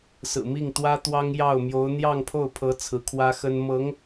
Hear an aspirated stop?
yes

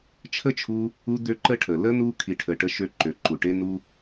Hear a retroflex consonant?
yes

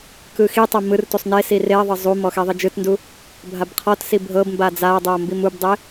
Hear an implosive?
no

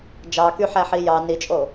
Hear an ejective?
yes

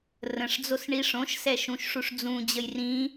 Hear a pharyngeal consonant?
no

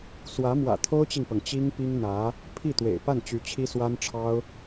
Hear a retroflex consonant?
yes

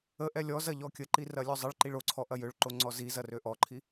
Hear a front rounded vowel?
yes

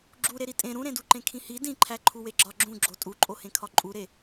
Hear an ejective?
yes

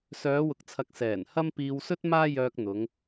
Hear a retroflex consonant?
no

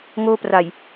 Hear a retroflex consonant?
no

